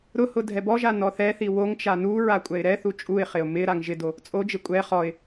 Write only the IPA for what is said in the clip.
ɾʊhʊ dʱɛbɔʒa nɔθɛθi woŋt͡ʃa nuɹa kʷʼɛɪ̯ɾɛθu t͡ʃʼuɪ̯χɪʊ̯ mɪ ɾaŋʒɪdo | t͡sʼod͡ʒɪ kʷʼɛ χɔɪ̯

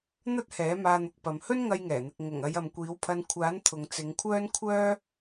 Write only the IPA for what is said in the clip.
n̪ɐ˥t̚hɛː˨˥ maː˧n̪ʊ˨k̚pɐ˨m hɵ˥nŋɐ˧jŋɛː˨˩n̪ɪ˨k̚ ŋʊ˨˩ŋ ɐ˨˧jɐ˨mkʷiː˨˥wpʰɐ˧n kʷʰaː˨˥nt̪ʰʊ˨ŋ t͡sɪ˨˧ŋkʷʰœː˥n kʷʰœː˥

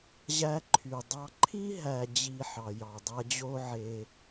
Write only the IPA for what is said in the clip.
ʑæ˦ǃʰy˨ dˤɑ˦ ǃʰi˥ɦæ˨d͡ʑi˨ ħɑ˩jɑ˩dˤæ˦d͡ʑo˥ ʕe˨

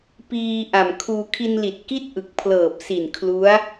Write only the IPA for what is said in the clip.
piː˧ʔa˨˩m kʰuː˧ kʰi˧nli˨˩t̚ki˥˩t̚ ʔɯ˨˩k̚pʰlɤː˨˩p̚si˨˩n kʰlu˦˥a̯

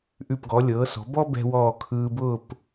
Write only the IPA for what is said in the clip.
ʔʉ˧˩pɡɔ˩˧ lʲɤː˩˧sɔ̤˩˧bɔ˥ bɛ̤˥wɔː˥˧ kʰɯː˧bʊː˥˧p

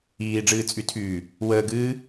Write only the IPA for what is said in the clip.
iːɖ͡ʐɨːt͡sʼytʰyː | wəːɡɨː

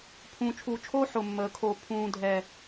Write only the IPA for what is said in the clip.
pʰũː˨t͡ʃʰuː˨t͡ʃʰoː˦ ħʊ˨mːəː˨ kʰo˨pʰũː˨ dʱɛ˨

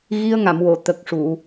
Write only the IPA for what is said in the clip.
ɣi˧ə̯ŋa˨˩˨mwo˨˩˨ t̪ə˨˩k̚ ʂu˨˩˨

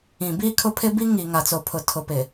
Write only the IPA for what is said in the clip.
ĩ˨biː˦kʰʊ˦pʰɪ˦ bi˦ŋiː˨ŋa˨t͡so˨ pʰʊ˨tʰʊ˨pɪ˨

